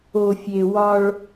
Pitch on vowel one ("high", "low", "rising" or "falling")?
low